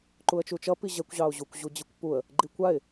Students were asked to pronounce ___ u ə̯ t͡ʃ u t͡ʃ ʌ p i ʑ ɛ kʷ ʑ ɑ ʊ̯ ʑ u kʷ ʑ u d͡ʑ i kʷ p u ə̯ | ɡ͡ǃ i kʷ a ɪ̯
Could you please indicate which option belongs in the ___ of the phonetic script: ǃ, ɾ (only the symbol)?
ǃ